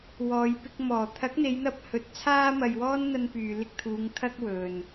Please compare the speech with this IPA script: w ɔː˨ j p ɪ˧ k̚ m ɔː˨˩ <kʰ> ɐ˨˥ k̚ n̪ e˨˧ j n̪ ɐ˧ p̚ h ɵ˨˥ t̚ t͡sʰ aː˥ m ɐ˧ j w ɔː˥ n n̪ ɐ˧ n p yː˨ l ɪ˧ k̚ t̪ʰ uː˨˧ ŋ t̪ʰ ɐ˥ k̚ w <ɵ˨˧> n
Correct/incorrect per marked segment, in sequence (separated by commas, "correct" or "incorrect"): incorrect, incorrect